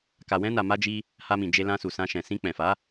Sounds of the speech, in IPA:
ka˨wɛ̃˧na˨ma˧ d͡ʒi˦ | ha˧mĩ˨d͡ʒe˧ lã˧su˨sã˧ʃɛ̃˨ sĩ˧k͡pɛ̃˨fa˨˦

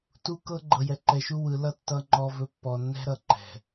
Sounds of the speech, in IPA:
tu˦kɤ˦ ɡ͡ǃɤ˨jɛ˨ǃɛ˨ʃu˦ wɯ˨˦lʌ˦ tːʌ˦ŋ͡ǃɔ˦vɵ˦ pːɔ˨nːɛ̤˦ɾʌ˨ ǃɛ̤˨

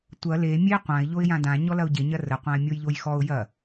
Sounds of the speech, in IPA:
tʷɐ le mʲe qʷãɪ̯ ʎoɪ̯jãdã ɲɔlɐʊ̯ɟe ɲɐrə qʷãɪ̯mʲojʎojxɔʊ̯ jɐ

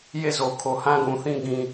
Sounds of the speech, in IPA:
je˦˨zo˨kʰo˨ hã˦ɡũ˨θĩ˦ ɡĩ˦

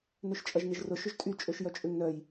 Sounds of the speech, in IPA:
nøʃt͡ʃʼɐʒnɪʒrʊ ʃʏʒtʼy t͡ʃʼøʃjœt͡ʃʼʏŋ nœj

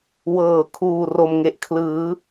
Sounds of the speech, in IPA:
wɤː˨˩kʰuː˨˩ ro˨˩mŋe˨˩ʔkʰlɯː˩˦

